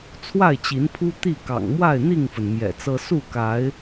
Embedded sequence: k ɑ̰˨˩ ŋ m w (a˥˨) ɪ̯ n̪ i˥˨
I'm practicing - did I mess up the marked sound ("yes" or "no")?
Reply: no